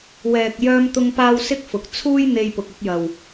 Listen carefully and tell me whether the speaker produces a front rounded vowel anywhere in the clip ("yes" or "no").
yes